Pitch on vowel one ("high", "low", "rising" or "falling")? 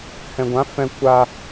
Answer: low